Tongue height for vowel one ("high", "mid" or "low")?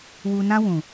high